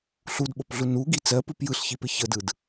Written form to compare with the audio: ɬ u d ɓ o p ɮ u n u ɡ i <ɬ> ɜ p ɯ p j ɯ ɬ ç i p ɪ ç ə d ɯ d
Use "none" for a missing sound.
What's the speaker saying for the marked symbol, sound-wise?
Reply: t͡s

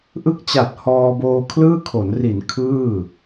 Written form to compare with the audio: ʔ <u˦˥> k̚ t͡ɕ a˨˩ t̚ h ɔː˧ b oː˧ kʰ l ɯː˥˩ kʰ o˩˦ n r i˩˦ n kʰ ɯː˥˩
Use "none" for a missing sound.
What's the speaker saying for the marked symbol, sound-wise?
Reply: ɯ˦˥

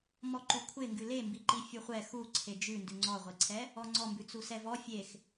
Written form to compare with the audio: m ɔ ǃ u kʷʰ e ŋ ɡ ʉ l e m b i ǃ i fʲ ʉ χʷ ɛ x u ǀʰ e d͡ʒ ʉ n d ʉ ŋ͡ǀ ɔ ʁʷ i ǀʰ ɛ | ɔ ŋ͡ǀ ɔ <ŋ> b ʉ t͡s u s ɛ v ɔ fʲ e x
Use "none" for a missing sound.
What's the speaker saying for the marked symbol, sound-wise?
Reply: m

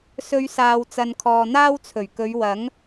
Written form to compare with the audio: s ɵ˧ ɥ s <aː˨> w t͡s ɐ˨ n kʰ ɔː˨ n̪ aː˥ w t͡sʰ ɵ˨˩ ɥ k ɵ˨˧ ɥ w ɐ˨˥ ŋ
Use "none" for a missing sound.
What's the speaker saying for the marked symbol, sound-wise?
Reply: aː˨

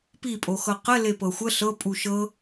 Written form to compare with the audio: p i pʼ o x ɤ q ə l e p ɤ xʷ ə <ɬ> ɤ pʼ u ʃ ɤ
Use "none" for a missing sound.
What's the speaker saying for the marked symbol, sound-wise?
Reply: ɬ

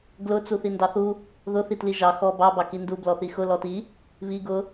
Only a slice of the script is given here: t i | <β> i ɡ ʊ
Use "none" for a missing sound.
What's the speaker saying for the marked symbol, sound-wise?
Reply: β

